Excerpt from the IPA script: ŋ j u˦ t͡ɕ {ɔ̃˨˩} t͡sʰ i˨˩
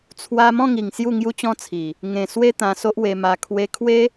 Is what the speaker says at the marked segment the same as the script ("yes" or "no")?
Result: no